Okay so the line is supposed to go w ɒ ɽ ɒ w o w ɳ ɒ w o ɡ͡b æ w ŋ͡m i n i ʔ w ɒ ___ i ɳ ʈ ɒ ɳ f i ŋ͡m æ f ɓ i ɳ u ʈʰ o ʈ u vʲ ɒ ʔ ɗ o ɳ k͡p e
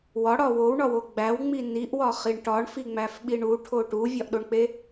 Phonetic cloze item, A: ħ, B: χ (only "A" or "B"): B